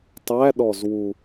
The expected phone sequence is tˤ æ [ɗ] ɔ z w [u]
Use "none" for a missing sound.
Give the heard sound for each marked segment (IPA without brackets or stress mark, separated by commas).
ɗ, u